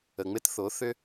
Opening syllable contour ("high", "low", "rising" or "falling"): low